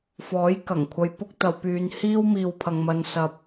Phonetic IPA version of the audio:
f ɔː˨˥ j k ɐ˨˩ ŋ kʷʰ ɐ˧ j p ʊ˥ k̚ t̪ ɐ˧ w p yː˧ n h iː˥ w m iː˨ w pʰ ɐ˨ ŋ m ɐ˨ n s ɐ˨ p̚

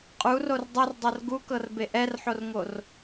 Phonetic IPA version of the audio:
qʼ u r o r dˤ u r dˤ ɤ r ɡ u k ɤ r b e ʔ ɛ r ħ o r ŋ o r

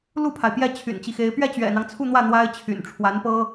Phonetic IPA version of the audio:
l u˥˩ pʰ a˩ ɪ̯ p j ɛ˥˩ t͡ɕʰ y̰˨˩ n t͡ɕ i˦ x e˧˥ ɪ̯ p ɥ ɛ˥˩ t͡ɕ ɥ ɛ̰˨˩ n̪ ɑ˦ ŋ t͡sʰ u˥˧ n̪ w ä˥˩ n̪ w a˥ ɪ̯ t͡ɕʰ y̰˨˩ n ʈ͡ʂʰ w a˧˥ n p ɤ˥

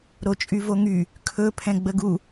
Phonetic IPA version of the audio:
ɾ o t͡ʃʼ y v o ŋ y | kʰ ɵ pʰ ɛ̃ ɡ͡b ə ɡ u

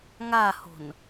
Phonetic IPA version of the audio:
ŋ a h o̤ n

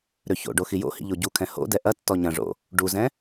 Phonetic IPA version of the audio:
ɾ ø ç o̰ ɖ o x i j o̰ h ḭ ʎ o ɟ u kʰ ɛ̃ h o̰ d ɛ ʔ ɐ tː ɔ ɲ ɐ̃ ʐ o̰ | ɖ u z ɛ̃

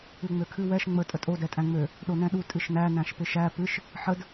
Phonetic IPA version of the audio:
ɨ ŋ͡m ø kʰ ɨ w ɛ ʃ ŋ͡m ə tʼ ə tʼ o d ɛ tʼ æ̃ ŋ͡m ø | ɗ o n ɛ̃ ɗ u tʼ ɨ ʃ n æ n æ̃ ʃ p ɪ ʃ æ p ɨ ʃ | ħ ə d

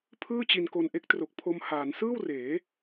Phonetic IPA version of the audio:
pʰ ɯː˥˩ t͡ɕ i˧ n k o˧ n ʔ e˦˥ k̚ t r o˨˩ k̚ pʰ o˧ m h aː˩˦ n s ɯː˥˩ w r eː˩˦

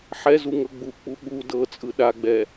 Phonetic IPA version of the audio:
ħ ɛ z u ŋ ɤ ɡ͡b u k͡p u ɠ u d ɤ t͡sʼ ɯ ɗ a ɡ͡b ɛ

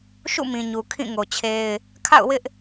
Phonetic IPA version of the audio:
ʃ ṵ˦˨ m ĩ˨ ɲ u˨ kʰ ĩ˦˨ ŋ o˨ t͡ɕʰ e˦ ɪ̯ | kʰ a̰˦˨ ʊ̯ w ɪ˦ ʔ

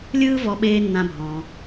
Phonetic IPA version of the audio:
lʲ ɯː˦ v ɔ˧ ɓ eː˧ nː ã˧ bʱ ɔ̃ː˧

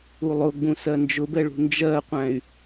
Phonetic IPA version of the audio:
u lˠ ʊ ɡ͡b ũ s ɜ n d͡ʒ ʊ b ɛ ɭ ṳ n d͡ʒ ɜ qʷ æ̃ y̯

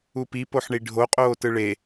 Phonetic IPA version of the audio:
u p i p o ħ ɳ i ɖʱ o qʼ oː t ɯ ɭ e

